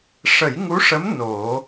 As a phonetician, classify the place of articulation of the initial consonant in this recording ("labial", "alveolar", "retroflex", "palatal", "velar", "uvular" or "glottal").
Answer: retroflex